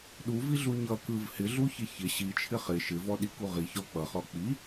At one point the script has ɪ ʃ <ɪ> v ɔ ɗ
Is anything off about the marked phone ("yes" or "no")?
no